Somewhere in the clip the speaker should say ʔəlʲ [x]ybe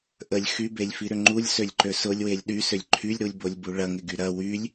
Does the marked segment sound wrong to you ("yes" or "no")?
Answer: no